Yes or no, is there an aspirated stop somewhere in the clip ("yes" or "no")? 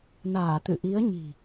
no